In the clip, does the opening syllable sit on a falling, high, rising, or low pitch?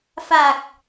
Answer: low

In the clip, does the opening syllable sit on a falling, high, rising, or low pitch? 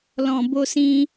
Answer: low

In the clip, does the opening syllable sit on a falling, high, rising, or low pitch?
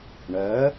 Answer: rising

